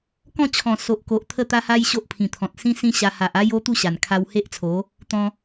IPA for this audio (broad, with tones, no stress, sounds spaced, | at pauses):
k ɔ̃˥˧ t͡ɕʰ ɔ̃˨˩ s o˨ ʔ k o˨ ʔ t̪ʰ ə˥˧ t̪ a˦ h a˦ j ɕ o˦ ʔ pʰ ĩ˨˩ t̪ʰ ɔ̃˨ t̚ s ĩ˦ s ĩ˦ ɕ a˧ h a˨ ʔ a˦ j o˦ t̪ u˥˧ ɕ a˨˩ n kʰ a˧ w h e˦ ʔ t͡sʰ o˨˦ | t̪ ɔ̃˧